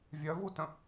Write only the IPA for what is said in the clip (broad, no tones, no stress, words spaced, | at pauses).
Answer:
vʲœvutə̃